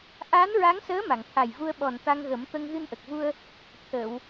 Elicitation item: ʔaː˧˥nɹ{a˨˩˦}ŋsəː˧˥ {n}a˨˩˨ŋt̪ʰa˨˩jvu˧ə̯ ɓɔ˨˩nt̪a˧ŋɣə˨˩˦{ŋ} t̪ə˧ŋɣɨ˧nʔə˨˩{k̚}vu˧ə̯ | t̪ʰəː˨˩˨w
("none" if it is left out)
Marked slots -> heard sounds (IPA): a˧˥, m, m, k̚

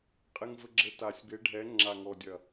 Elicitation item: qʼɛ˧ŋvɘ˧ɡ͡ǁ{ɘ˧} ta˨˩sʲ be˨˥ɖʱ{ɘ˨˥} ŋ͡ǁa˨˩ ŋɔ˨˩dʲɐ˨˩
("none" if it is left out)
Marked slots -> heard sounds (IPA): ɘ˨˥, ɛ˨˥

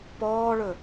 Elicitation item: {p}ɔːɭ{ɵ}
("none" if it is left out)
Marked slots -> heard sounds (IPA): p, ɵ

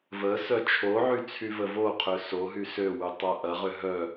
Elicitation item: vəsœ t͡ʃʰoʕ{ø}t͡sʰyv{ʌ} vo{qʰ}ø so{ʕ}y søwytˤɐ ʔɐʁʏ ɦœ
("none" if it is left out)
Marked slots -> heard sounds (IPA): y, ə, qʰ, ɦ

